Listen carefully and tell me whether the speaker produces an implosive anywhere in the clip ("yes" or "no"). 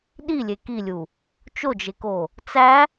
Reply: yes